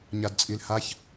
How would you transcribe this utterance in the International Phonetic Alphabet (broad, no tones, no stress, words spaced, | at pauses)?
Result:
ɲadt͡sʼilhaç